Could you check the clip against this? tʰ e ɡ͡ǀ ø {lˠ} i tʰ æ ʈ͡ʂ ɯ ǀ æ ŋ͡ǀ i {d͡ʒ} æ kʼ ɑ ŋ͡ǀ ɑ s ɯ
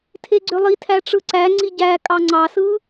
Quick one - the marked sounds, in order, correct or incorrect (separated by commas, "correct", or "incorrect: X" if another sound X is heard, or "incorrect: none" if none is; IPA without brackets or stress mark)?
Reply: correct, incorrect: ɟ